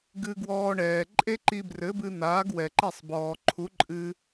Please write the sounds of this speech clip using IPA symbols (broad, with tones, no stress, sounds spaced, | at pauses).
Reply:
ɡ ɨ˧ ɡ w ɔː˧ ɳ ɛː˩ ǃʼ e˥ ǃ i˧ b r ɘ˩˥ b ɨ˧ n̪ aː˩˥ ɡ w ɛ˩ ǃ ɛ˥˩ sˤ b ɔː˩ ǃʰ u˩˥ ǃʼ ɨ˧